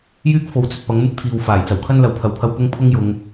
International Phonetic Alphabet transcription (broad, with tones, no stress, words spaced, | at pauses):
jyː˥k̚fo˨˥wt͡sɵ˨t̚ pɐ˨˥ŋmɪ˥k̚t̪ʰiː˨w faː˨˩jt͡sɐ˨˩wkʰɐ˥n lɐ˨wpʰɐ˨wpʰɐ˧w pʊ˥ŋpʰʊ˥ŋjʊ˨˧ŋ